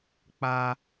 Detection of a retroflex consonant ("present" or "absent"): absent